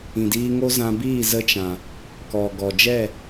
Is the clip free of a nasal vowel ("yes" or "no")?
no